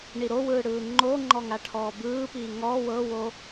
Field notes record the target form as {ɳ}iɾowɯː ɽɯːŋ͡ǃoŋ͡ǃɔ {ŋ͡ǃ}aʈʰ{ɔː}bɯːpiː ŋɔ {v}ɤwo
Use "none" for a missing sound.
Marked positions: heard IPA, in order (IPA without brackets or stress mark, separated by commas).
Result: ɳ, ŋ, ɔː, w